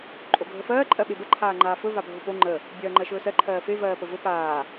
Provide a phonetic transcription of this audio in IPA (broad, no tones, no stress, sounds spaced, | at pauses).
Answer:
ǃʼ o ɡʱ ə f ɜː ǃʼ ɜ ɓ e b ə ǃʰ aː ŋ͡ǃ aː f ɵ v a bʱ o p o ŋ͡ǃ ə | bʲ ɜː ŋ͡ǃ ɜ ʃ ɵː s ɜ ǃʰ ɜː f e v ɜː p ə v ɵ p aː